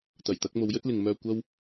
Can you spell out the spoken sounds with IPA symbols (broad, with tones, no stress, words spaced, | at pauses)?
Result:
t̪ɐ˨˩jt̪ɐ˨˥k̚ mo˨˧wjɵ˥t̚lɪ˨ŋmœː˧ kʷɐ˥w